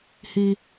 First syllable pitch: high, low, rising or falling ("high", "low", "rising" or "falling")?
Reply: high